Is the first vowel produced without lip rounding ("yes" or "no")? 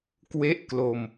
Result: yes